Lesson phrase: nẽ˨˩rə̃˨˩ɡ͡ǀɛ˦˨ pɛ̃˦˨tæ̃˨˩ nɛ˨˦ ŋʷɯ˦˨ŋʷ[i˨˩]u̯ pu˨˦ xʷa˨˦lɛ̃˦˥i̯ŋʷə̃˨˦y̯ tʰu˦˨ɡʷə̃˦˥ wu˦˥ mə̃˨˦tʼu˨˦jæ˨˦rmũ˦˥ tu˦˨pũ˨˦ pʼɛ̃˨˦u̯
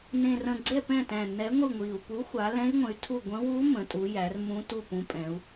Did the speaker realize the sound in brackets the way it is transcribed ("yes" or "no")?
yes